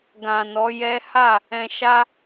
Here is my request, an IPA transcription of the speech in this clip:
ɡã˨nɔ˨˦ jɛ˦ ha˦˨ | ɛ̃˧ ʃa˦

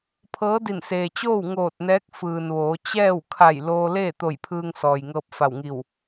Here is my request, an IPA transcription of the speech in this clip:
pʰɤː˧˥di˧˩n seː˩t͡ɕoː˥˨w ŋoː˧˩t̚nɛː˧˥k̚fɯː˩nʋoː˩˧ t͡ɕɛː˥˨wkʰa˧˩j loː˧leː˥˨t̪o˧˩j pʰɯː˧ŋsɔː˩jŋɤː˧p̚ fa˧˩wŋi˧˩w

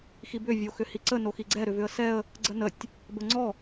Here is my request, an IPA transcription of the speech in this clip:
xibʏ vʲoxʏhiǀə noxiɡ͡ǀɛ ɾʏvʏə̯sɛə̯ | ɡ͡ǀənətʲ | bəŋ͡ǀɔ

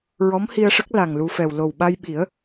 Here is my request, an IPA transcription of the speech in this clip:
ɹɔ˧˥mhi˧ə̯ʂə˦˥k̚ la˨˩ŋlu˧fɛ˨˩w lo˨˩wɓa˧jɓi˨˩˦ə̯

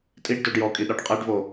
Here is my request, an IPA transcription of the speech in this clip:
tʼiɖdoɖ jɔkʼiɗɔɖ qʼɛɖvo

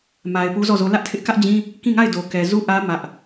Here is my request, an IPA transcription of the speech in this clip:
ma˨ɪ̯ pu˦zɔ˦˨zo˦ lä˦ʔtʰɪ˦ʔ kä˦ʔd͡ʑĩ˦ | kĩ˦˨ŋa˦˨ɪ̯ do˨kɛ˨ zu˦ʔä˦ mä˦ʔ

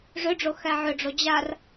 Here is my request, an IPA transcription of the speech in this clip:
ʐʏɖ͡ʐo xæʕʏɖ͡ʐo d͡ʑar

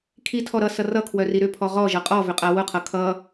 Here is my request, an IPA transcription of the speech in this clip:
kʰitʰɔ ɾʌ sʌrʌkʰwœ riɾʏpʰɔ ʁɔʒʌ qʼɔ vʏqʼawʊqʰʌ kʰʌ

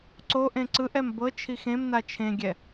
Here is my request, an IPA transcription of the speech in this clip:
ǀoʔẽ ǀɯʔɛm bɤ t͡ʃʰixẽmna t͡ʃʰẽɡʲɛ

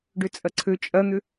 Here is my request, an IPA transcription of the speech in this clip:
ɖøt͡sʼɐǀʰø t͡ʃʼɐn̪ʏ

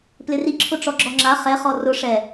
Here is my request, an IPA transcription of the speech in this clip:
plɪri ǁʰʊʈ͡ʂɔɡ͡ǁɔŋ͡ǁa χɛχɔ rʊ ʂɛ

